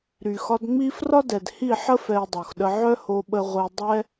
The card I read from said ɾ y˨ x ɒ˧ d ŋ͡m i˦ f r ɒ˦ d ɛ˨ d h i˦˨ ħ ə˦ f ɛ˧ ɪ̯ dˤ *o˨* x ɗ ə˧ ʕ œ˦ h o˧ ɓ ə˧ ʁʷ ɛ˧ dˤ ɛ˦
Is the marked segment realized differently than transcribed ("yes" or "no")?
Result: no